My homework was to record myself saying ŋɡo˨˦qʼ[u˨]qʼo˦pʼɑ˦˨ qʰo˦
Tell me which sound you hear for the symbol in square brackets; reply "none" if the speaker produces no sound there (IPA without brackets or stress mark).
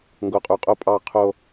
u˨